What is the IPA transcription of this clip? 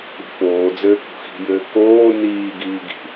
i̤foːd͡zɘː kṳxi̤jɘː koː niːɡiː ɡi̤

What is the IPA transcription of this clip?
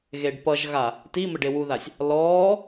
ɣeɖpʌʒɣa | ti mɘɖewuðasʲ | lɔː

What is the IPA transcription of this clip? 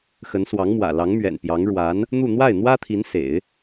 xə˧˥nswɑ˧˥ŋmwä̰˨˩ lɑ˧˥ŋmɥɛ̰˨˩npjɑ˧˥ŋ ɻwa˧˥n | n̪u˥˧ n̪wa˥˩ɪ̯n̪wä˥t̪ʰi˧˥n sḛ˨˩˦ɪ̯

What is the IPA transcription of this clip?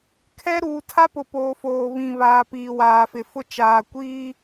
kʰɛ˦ ɾuː˨tʰa˦pʊ˨ poː˨foː˨βĩ˨βaː˨ piː˨waː˨fɪ˨fʊ˦ t͡ʃaː˨kʷiː˦

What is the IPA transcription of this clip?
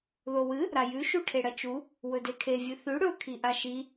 ðowɨ | ɾajʉ ʃuʈʰeɽɐt͡ʃu | wɵdekʰe vʲɨθʉ ɽɵ kʰiʔaʃi

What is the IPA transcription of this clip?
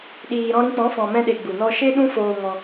ɗiː˨ɾɔ̃˧ɾĩ˧k͡pɔ̃˨˦ fɔ̃˨mɛ̃˧ɗe˨ ɡ͡bu˨nɔ˧ʃe˦ ɗũ˦foː˧ ŋɔ̃˧

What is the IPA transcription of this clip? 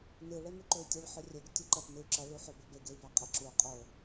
nɨ ɭemʉǃɵy̯tʲɨɭ ħɵrʲɵɡ tʲuǃɐt nɨy̯ǁɐ ɭuħobobe ɡei̯baqʼeǁu qʼo

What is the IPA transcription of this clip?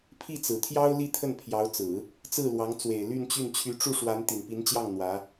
pʰi˥˩t͡sɹ̩˨˩t̪ʰjɑ˥ʊ̯ li˥˧t̪ʰə˥˩npʰjɑ˧˥ʊ̯t͡sɹ̩˨˩˦ | t͡sɹ̩˥˩lwɑ˧˥ŋt͡swe˨˩ɪ̯ ly˥˧nt͡ɕy˥˩n t͡ɕʰy˧˥ʈ͡ʂu˥˩ʂwa˧˥n t̪i˨˩npi˧˥nt͡ɕjɑ˥˩ŋ n̪wä˧˥

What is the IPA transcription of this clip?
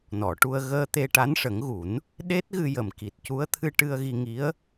nɔ˨˩˨ʈu˧ə̯ ɣəː˧ t̪e˧ʈa˧˥n ʂə˨˩˦ŋɣu˨˩˦n | ɗe˦˥t̚ɣɨ˧jə˨˩m ki˨˩t̚cu˧˥ə̯t̪ʰɨ˧ʈɨ˧ə̯ ɣi˧ŋi˧˥ə̯

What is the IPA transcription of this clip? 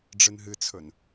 ɖ͡ʐɨnɦɨt͡sʰɵn

